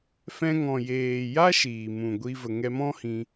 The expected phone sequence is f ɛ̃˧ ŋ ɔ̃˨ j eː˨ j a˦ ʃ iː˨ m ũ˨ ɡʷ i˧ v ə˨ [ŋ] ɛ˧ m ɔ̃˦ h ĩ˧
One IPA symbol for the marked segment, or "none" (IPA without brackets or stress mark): ŋ